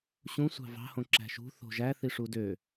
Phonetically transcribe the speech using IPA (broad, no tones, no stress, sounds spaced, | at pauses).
ɕ ũ sʷ ɑ̤ v ɑ̤ h õ ǁ æ̤ ʃ ṳ θ o̤ ʒ æ θ i ʂ u d ø